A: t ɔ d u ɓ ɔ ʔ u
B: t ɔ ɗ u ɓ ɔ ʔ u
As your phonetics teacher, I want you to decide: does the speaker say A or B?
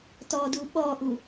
A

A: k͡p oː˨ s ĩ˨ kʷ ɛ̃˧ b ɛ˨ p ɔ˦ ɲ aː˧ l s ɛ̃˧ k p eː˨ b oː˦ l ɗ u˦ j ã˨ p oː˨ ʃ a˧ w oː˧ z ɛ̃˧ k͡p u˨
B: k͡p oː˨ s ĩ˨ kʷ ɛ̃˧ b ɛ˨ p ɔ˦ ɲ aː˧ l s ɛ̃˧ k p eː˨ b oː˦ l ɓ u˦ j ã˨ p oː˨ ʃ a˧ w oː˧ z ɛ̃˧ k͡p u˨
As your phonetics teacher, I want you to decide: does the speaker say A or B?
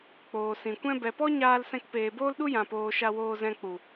A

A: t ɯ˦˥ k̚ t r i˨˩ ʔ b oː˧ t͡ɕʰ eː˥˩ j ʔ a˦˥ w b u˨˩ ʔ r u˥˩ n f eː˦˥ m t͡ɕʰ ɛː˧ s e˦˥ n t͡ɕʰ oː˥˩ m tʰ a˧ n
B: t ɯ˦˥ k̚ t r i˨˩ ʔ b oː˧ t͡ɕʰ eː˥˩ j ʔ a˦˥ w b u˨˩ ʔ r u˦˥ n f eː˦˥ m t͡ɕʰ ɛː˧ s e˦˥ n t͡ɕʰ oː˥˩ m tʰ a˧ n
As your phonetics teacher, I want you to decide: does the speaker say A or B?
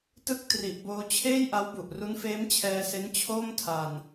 B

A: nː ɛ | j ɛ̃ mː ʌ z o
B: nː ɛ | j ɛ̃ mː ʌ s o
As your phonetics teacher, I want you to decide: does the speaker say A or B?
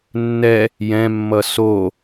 B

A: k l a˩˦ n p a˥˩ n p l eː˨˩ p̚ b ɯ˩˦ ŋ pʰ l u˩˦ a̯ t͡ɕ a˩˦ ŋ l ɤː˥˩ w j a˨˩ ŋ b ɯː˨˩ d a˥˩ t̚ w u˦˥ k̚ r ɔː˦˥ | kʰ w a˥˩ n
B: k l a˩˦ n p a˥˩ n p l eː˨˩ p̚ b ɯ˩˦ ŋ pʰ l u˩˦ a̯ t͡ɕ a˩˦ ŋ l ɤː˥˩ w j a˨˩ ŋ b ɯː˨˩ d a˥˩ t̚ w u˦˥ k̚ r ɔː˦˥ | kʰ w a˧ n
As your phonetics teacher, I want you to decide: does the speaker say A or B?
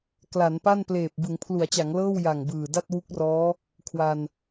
B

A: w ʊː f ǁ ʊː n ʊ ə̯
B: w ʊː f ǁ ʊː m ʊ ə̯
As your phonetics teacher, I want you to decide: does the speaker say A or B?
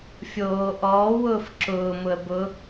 B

